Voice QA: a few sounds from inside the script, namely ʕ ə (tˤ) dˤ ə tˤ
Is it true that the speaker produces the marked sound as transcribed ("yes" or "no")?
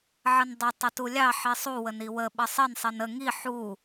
no